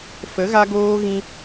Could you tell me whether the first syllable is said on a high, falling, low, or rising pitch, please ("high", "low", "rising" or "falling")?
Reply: rising